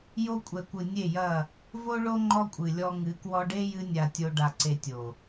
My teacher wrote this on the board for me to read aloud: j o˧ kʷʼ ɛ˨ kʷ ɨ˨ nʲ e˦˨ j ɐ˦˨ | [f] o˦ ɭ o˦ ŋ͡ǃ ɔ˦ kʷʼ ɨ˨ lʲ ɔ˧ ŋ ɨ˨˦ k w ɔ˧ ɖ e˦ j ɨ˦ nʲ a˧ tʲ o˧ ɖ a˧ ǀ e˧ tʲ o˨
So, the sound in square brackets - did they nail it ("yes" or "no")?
no